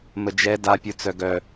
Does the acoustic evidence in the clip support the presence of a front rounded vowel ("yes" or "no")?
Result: yes